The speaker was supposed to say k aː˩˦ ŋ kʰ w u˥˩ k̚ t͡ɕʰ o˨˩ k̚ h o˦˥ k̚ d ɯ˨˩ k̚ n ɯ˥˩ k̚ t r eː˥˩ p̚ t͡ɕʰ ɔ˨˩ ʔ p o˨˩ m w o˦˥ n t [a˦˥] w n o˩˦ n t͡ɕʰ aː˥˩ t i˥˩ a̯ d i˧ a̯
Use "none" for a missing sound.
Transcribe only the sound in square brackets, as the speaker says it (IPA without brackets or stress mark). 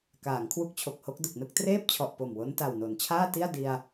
a˨˩